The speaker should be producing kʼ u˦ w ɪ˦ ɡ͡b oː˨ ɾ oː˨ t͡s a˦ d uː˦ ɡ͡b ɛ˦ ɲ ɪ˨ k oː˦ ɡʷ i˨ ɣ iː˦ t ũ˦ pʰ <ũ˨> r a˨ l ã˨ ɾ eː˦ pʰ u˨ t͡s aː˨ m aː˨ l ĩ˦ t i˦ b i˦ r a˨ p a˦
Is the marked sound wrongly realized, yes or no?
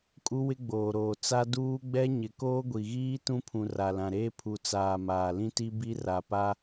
no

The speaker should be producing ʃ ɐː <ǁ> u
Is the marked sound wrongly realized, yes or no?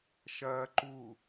yes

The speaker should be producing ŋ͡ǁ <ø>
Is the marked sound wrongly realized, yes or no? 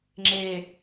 yes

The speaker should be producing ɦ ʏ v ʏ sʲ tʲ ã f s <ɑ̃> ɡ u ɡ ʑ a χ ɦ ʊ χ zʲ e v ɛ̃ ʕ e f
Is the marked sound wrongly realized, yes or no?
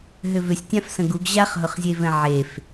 yes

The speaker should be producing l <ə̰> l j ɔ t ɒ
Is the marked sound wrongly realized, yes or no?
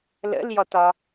no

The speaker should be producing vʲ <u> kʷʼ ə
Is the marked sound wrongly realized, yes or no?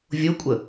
yes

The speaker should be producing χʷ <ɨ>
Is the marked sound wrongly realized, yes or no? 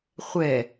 yes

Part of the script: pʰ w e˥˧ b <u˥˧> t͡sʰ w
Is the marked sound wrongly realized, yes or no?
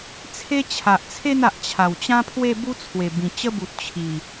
yes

